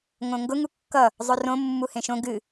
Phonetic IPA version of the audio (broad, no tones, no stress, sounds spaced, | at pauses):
ŋ õ ŋ ɡ ʊ ŋ u kː ʌ | zˤ ɵ r õ mː u h ẽ ʃ õ ɡ ɨ